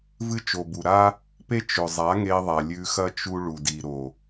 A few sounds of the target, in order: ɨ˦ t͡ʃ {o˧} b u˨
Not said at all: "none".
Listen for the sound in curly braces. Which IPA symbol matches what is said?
o˨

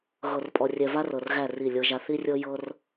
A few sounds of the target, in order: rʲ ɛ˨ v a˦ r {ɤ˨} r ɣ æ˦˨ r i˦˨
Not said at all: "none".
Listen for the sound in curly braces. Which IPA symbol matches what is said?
ɤ˨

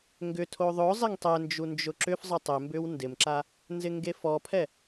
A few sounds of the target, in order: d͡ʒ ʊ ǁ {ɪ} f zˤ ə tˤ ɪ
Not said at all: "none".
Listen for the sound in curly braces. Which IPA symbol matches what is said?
ʏ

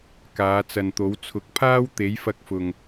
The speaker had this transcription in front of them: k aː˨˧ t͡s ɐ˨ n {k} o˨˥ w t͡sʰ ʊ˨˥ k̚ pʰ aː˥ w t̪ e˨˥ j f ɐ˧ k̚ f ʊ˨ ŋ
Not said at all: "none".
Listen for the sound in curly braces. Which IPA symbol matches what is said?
t̪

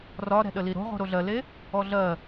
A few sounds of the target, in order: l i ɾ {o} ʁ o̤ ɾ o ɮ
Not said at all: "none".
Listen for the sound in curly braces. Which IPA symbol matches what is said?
o̤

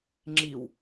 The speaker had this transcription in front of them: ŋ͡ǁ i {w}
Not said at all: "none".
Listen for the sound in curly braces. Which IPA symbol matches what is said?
w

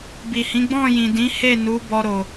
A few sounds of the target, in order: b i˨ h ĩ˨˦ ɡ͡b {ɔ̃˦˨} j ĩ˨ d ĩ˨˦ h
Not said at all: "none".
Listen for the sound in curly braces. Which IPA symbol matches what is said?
ɔ̃˦˨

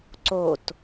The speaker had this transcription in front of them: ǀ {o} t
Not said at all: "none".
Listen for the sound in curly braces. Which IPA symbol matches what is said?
o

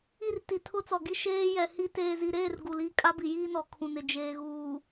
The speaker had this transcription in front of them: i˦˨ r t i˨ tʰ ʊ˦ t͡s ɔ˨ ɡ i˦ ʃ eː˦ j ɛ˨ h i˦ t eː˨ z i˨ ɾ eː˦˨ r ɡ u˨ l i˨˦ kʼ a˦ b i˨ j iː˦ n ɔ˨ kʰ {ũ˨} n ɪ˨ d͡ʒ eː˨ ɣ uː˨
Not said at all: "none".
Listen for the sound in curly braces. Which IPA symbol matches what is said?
ũ˨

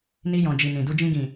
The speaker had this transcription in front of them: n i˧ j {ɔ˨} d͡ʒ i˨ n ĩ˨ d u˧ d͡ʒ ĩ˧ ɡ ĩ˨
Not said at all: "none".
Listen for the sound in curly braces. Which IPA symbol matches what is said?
ɔ̃˨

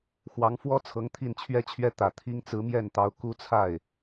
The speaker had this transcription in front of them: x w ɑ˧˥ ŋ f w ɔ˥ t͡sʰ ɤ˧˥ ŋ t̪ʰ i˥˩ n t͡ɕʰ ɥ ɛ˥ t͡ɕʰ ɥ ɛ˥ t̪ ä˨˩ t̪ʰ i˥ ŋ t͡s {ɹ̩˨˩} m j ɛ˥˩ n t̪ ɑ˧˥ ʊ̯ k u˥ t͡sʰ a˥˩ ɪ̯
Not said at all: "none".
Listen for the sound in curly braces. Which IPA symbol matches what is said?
ɹ̩˧˥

